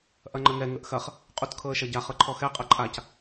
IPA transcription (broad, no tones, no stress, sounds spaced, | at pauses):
ʔ ɐ ŋ͡ǃ ə ŋ ɛ ŋ ə ʔ x ɐ χ | qʼ u t kʰ ɤ ə̯ ʃ ɐ ɟ a χ ɤ ǃʰ ɔ x ɛ qʼ ɐ ǃʼ a c